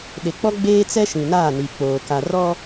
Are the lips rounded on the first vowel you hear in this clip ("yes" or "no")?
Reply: no